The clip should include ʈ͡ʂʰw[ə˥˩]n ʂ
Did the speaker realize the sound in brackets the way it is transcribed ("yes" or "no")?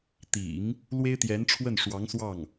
yes